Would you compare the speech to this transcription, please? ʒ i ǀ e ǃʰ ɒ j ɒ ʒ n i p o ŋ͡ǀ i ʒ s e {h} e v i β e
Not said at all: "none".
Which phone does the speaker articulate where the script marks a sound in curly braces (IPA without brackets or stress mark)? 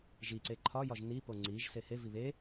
h